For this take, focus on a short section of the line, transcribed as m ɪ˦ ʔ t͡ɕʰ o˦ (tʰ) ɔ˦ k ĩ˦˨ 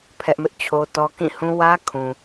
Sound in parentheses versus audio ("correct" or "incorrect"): incorrect